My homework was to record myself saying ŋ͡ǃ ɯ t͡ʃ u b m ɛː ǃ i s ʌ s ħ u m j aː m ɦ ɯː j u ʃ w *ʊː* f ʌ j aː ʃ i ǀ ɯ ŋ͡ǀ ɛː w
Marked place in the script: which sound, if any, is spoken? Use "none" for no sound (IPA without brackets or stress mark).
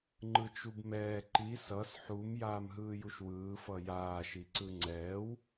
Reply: ɯː